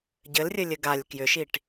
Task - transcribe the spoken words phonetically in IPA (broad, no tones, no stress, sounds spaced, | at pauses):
ɟ ɘ l rʲ ɘ lʲ ɘ ɡ a lʲ k j ʏ ʃ i ʈ